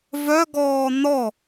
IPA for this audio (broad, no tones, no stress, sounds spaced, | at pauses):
v œ ɡ ɔː n̪ ɔ